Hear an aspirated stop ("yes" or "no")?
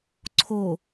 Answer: yes